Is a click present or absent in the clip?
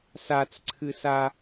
present